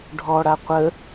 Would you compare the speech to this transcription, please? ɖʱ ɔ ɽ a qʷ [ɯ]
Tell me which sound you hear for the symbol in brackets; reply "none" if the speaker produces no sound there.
ə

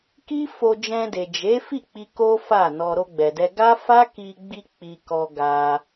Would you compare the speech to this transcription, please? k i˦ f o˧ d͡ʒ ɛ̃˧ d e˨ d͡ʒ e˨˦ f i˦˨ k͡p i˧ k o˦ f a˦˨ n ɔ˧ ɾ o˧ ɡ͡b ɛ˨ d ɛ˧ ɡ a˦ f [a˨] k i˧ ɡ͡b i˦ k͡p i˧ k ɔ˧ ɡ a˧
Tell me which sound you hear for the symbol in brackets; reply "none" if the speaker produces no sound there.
a˦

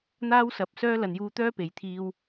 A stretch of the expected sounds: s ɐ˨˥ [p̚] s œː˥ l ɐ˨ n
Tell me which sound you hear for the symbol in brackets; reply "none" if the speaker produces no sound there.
p̚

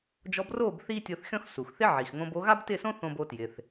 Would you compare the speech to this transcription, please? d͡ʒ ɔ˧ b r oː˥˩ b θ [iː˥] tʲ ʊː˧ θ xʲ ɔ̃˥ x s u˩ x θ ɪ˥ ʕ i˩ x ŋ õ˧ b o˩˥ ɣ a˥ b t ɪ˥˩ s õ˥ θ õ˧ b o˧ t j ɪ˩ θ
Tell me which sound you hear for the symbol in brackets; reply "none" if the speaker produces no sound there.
iː˥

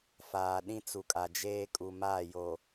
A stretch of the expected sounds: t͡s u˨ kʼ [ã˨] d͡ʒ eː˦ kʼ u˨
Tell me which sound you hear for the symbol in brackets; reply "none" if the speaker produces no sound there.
a˨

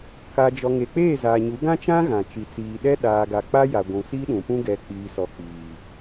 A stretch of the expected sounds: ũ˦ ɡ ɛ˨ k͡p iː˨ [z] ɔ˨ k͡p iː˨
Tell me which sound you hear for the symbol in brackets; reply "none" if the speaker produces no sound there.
s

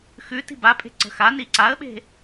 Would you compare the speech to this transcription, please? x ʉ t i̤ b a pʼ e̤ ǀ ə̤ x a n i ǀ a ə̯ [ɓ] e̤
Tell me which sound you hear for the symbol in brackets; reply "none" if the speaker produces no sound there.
ɓ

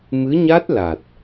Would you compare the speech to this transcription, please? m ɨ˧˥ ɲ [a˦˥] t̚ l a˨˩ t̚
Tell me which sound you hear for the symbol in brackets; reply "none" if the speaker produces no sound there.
a˦˥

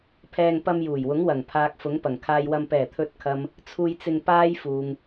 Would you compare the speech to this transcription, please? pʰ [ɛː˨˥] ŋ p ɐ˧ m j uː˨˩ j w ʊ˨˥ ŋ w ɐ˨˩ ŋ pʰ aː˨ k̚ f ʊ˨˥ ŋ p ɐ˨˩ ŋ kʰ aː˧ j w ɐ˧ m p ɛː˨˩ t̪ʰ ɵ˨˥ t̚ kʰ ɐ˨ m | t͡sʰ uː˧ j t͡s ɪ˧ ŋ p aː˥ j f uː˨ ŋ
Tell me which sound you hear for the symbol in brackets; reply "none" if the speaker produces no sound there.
ɛː˧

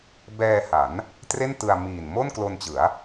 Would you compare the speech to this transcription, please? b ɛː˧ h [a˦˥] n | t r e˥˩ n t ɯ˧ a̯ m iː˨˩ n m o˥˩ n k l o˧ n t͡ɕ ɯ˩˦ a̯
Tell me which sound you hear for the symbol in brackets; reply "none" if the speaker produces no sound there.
a˩˦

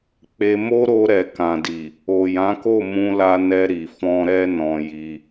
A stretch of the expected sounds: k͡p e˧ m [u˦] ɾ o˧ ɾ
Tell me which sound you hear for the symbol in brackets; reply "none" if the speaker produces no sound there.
o˦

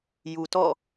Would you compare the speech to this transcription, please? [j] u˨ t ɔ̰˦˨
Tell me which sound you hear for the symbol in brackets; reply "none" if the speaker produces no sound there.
j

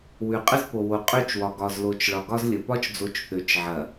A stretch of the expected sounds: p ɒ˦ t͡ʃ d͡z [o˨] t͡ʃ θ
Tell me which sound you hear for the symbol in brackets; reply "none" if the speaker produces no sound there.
o˨˦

